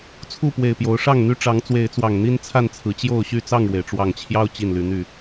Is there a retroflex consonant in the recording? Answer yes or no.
yes